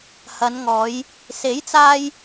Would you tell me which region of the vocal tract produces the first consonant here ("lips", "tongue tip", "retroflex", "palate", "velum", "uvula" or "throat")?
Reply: throat